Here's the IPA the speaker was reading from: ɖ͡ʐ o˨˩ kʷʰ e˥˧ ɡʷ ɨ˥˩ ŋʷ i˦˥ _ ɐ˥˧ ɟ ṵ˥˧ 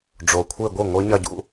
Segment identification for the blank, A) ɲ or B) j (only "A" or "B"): A